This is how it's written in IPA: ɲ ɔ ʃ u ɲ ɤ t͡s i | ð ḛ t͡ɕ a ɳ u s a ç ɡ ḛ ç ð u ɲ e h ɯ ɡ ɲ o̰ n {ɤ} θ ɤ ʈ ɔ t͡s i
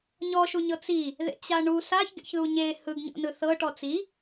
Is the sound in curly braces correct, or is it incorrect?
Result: incorrect